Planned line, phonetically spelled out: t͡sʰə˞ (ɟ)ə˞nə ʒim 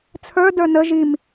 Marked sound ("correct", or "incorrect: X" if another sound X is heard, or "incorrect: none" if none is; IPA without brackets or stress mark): incorrect: d